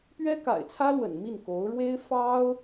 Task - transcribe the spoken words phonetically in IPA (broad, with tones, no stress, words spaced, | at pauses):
pɥɛ˥ka̰˨˩ɪ̯t͡sʰä˥lwə̰˨˩n mi˥˩nko˧˥ʊ̯ ɻwe˥ɪ̯ fɑ˥ʊ̯